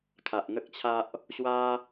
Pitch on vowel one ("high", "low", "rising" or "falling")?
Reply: low